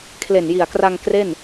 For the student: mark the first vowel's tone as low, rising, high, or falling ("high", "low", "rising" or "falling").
low